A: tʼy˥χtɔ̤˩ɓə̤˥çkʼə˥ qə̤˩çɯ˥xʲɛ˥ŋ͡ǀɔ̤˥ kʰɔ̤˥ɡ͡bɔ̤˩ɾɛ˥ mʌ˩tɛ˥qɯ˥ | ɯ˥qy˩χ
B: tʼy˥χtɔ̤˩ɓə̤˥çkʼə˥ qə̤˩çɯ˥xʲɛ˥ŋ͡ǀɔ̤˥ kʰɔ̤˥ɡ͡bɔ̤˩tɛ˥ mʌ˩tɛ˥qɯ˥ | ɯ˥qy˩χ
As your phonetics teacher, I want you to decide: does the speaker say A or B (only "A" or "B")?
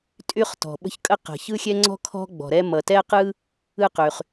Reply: A